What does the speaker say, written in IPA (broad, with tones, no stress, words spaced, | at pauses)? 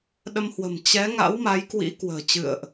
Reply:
ɗə˧mhwə̤˨˩m t͡ɕɛ˨˦ŋa̰˧˥w ma˨˦jkwḭ˧˥ kwə̤ː˨˩t͡ɕɨ̰˧˨ə̯ʔ